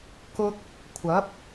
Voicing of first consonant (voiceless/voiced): voiceless